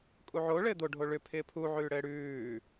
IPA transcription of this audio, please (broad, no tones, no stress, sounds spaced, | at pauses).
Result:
kʼ u ʕ o ɭ ɘː d̪ o ɖʱ o ɭ ʏ pʰ ɪː pʰ u ʕ ʉː ɽ ɘː ɽ ʉː